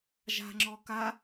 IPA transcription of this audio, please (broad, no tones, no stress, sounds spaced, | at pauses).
ʒ a̤ ŋ͡ǁ ɔ k a